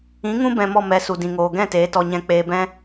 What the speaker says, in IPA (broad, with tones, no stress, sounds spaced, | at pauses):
ĩ˨˦ ŋ ũ˦ b ɛ̃˧ m ɔ˦˨ m ɛ˨ s u˨ d ĩ˨ ŋ oː˨ ɡ ɛ̃˦˨ t eː˨˦ t ɔ˧ ɲ ɛ̃˧ k͡p eː˧ b ɛ̃˦